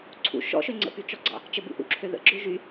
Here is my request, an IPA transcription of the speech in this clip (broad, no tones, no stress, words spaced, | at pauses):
ǀʰṵ ʃɔ̰ʃø ŋ͡ǀə̰pyt͡ʃɔɡ͡ǀɑ̰ | t͡ʃəbṵʔṵǁʰø ðə̰ɡ͡ǁø ʒy